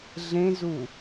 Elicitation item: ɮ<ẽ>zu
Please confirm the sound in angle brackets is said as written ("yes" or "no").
yes